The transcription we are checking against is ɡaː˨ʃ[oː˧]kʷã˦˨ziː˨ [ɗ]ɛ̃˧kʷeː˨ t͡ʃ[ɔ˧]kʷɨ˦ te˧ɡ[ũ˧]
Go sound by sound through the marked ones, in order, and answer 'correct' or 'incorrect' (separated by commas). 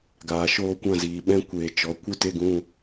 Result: correct, incorrect, incorrect, correct